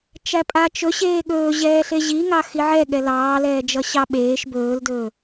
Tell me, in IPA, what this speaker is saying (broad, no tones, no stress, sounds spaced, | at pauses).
t͡ʃ æ pʼ a t͡ʃ ɵ ɕ eː ɠ ɵː ʑ ɛː ɬ e ʑ i ŋ ɑ x i ʕ ɛ ɠ ɛ l ɑː l ɛː d͡ʒ ʌ ɕ ɑ ɓ eː ʃ b ɵː l d ɵː